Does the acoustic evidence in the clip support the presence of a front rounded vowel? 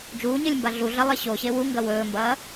no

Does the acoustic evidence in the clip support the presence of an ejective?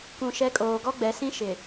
yes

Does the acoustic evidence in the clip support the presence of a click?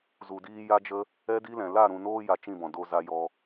no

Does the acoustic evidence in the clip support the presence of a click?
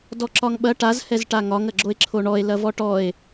yes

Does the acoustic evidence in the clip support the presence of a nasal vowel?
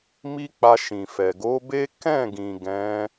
yes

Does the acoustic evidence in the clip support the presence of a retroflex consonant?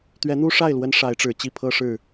yes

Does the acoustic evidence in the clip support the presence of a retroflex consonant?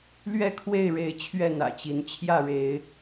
yes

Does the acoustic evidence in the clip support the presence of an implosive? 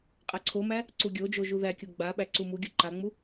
yes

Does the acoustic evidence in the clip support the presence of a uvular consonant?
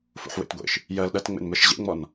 no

